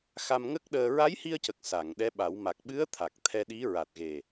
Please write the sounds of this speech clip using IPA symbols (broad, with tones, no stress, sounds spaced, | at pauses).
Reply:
x a˧ m ŋ ə˦˥ k̚ ɗ əː˧ ɹ a˧˥ j h i˧ ə̯ c ə˨˩ k̚ s a˨˩˨ ŋ ɗ ɛ˧˥ ɓ a˨˩˦ w m a˨˩ k̚ ɓ ɨ˧˥ ə̯ t̪ʰ a˨˩ k̚ t̪ʰ ɛ˧ ɗ i˧˥ ɹ a˨˩ t̚ ɣ e˨˩